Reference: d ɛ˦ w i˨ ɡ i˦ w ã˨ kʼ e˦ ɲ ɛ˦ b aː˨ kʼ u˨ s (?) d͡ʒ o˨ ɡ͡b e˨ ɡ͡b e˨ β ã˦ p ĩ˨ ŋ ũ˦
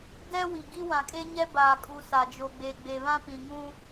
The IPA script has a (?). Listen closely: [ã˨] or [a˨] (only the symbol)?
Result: a˨